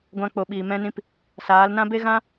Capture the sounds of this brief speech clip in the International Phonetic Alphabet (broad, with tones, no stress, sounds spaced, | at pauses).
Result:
ɡʷ ã˧ k͡p o˨ ɓ iː˨ m ɛ̃˧ n ĩ˧ p | s aː˨˦ l n ã˦ b e˦ ɣ ã˦